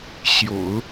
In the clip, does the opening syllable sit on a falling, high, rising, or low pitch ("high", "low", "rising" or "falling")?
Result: low